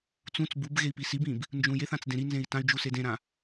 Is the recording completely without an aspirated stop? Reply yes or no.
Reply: yes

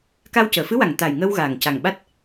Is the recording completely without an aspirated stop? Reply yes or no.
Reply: yes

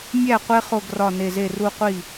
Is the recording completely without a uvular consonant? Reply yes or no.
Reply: no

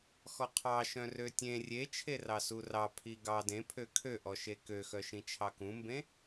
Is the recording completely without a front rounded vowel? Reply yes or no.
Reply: no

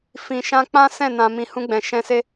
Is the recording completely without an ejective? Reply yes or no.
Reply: yes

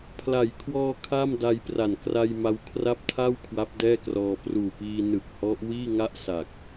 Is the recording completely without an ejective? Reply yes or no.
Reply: yes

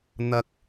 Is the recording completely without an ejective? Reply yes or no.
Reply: yes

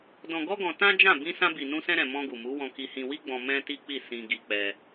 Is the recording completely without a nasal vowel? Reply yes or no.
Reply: no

